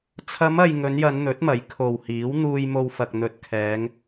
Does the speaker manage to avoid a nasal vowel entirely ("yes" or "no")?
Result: yes